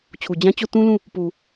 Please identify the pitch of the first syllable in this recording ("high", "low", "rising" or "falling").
low